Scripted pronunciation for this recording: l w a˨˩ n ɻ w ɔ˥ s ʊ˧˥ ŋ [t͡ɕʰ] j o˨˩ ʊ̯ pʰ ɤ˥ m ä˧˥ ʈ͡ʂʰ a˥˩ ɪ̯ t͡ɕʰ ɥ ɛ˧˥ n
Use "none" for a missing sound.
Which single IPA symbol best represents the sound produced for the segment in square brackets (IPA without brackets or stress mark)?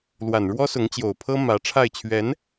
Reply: t͡ɕ